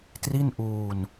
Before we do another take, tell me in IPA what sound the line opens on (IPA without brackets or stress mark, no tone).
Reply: t